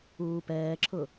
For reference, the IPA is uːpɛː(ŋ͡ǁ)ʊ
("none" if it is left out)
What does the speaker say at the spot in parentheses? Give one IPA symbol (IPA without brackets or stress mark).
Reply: ǁʰ